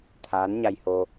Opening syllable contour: rising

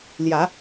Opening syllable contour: rising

